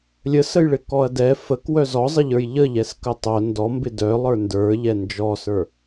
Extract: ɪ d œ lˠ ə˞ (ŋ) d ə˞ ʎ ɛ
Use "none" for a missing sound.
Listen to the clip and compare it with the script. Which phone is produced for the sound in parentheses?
n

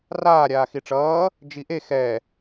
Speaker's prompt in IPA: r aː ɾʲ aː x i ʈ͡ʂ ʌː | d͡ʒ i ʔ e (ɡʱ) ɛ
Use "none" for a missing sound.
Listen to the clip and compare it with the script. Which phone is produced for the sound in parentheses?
x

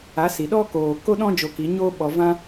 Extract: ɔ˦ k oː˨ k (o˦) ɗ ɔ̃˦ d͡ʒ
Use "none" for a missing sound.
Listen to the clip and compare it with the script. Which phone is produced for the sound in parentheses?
o˦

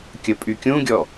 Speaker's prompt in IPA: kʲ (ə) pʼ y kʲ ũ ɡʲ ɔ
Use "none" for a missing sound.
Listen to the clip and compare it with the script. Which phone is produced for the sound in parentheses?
ə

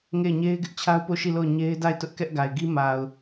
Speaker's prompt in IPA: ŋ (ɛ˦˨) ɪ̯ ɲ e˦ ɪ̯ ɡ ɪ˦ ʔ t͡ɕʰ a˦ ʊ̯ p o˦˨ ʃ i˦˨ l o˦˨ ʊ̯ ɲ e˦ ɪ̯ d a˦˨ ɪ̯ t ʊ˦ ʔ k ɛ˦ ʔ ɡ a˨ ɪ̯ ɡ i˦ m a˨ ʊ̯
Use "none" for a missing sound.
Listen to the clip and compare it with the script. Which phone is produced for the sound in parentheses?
e˦˨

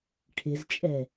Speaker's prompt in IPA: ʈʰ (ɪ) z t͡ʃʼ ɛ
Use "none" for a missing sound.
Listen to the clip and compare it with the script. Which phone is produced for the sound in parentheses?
ɪ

